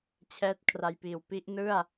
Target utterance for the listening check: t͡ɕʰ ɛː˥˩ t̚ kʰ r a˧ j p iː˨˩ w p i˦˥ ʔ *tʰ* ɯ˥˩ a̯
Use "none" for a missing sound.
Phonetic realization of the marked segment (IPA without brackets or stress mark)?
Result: n